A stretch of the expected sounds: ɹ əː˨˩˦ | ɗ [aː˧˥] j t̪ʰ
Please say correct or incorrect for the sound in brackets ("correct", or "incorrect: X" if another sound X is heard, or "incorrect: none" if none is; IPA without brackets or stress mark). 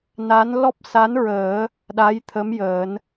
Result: incorrect: a˧˥